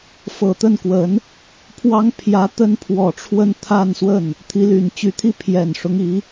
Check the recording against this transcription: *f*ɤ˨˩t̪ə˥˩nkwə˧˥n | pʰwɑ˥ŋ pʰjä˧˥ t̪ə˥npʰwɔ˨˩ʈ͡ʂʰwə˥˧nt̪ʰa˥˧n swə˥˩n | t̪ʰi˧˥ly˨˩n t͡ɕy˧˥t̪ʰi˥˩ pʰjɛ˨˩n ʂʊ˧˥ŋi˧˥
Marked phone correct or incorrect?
correct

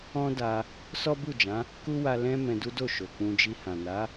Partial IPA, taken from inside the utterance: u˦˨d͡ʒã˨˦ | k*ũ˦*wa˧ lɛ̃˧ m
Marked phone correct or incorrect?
incorrect: u˦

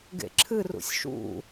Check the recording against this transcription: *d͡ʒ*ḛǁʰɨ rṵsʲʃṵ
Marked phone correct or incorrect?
incorrect: ɡ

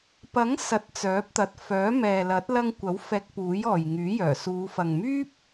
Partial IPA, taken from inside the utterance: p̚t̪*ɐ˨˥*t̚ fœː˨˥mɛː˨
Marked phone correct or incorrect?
incorrect: ɐ˨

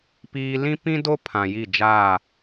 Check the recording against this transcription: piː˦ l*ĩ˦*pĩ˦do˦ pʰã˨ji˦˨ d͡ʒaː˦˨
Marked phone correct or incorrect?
correct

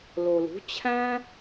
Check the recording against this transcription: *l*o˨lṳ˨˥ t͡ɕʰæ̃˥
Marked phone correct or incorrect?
correct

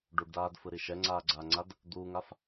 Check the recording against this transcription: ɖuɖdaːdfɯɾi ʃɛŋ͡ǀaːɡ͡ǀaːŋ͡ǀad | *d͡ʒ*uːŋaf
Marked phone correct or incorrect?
incorrect: d̪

